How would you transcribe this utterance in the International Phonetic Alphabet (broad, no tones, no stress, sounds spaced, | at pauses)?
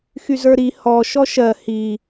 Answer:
x y z ə˞ ɾ i h ɔ ʃ ɔ ʃ ɜ h i